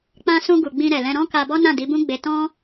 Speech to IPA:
k͡pã˧sũ˧ ɡu˨ɡ͡bĩ˧ɾɛ˨lɛ̃˧ ɾɔ̃˦ ka˧bɔ˦nã˦˨ di˨˦bũ˦ɡ͡be˧ tɔ̃˦

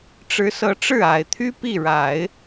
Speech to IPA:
ʈ͡ʂɻ̩˧˥sɤ˧˥ʈ͡ʂɻ̩˥˩ a˨˩ɪ̯t̪ʰy˥ pi˥˩ɻa˨˩˦ɪ̯

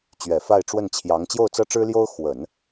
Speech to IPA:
t͡ɕɥɛ˨˩fa˥˧ɪ̯ʈ͡ʂwə˥˩nt͡ɕʰjɑ˧˥ŋ t͡ɕjo˥˩ʊ̯t͡sɤ˥ʈ͡ʂɻ̩˥ljo˥ʊ̯ xwə˨˩˦n

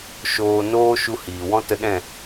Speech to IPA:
ʃoː˧ noː˦ʃu˧hiː˨ wɔ̃˦tə˧ɗɛ̃˦˨

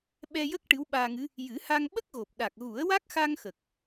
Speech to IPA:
ɓɛ˧jə˦˥k̚ ʈɨ˧˥wɓaː˧ŋɨ˧˥ | jɨ˨˩˦ha˧ŋ ɓə˦˥k̚ɣo˨˩p̚ɗa˨˩k̚ɣu˨˩˦ə̯ wa˦˥k̚xa˧ŋxə˨˩k̚

